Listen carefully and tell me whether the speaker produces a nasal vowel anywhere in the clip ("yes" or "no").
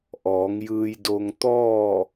no